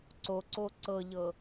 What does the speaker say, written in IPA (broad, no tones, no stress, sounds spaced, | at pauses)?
ǀ o ǀ o ǀ ɤ ʎ ɤ